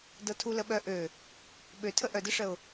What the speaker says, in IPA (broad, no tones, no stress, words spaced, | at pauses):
dɤtʰuləɓœ ʔø | ɓø tʰəʔœdəʂəʊ̯